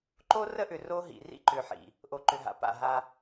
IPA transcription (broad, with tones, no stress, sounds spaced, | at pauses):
ǃ o˦ r ə˦ ʔ ʏ˨ r o˦ ɦ ḭ˨ r ḭ˦ ǃ ʏ˨ ħ ḭ˨ | ʔ o˨ ǃ ʏ˨ ɦ a̰˨ p a̰˦˨ ɦ a˦